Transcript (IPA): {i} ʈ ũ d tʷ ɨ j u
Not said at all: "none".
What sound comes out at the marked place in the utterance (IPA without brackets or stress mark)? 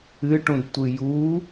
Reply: ɨ